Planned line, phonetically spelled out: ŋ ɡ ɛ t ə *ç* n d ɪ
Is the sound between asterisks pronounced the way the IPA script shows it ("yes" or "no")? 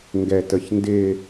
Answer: yes